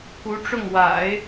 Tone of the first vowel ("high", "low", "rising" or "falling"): rising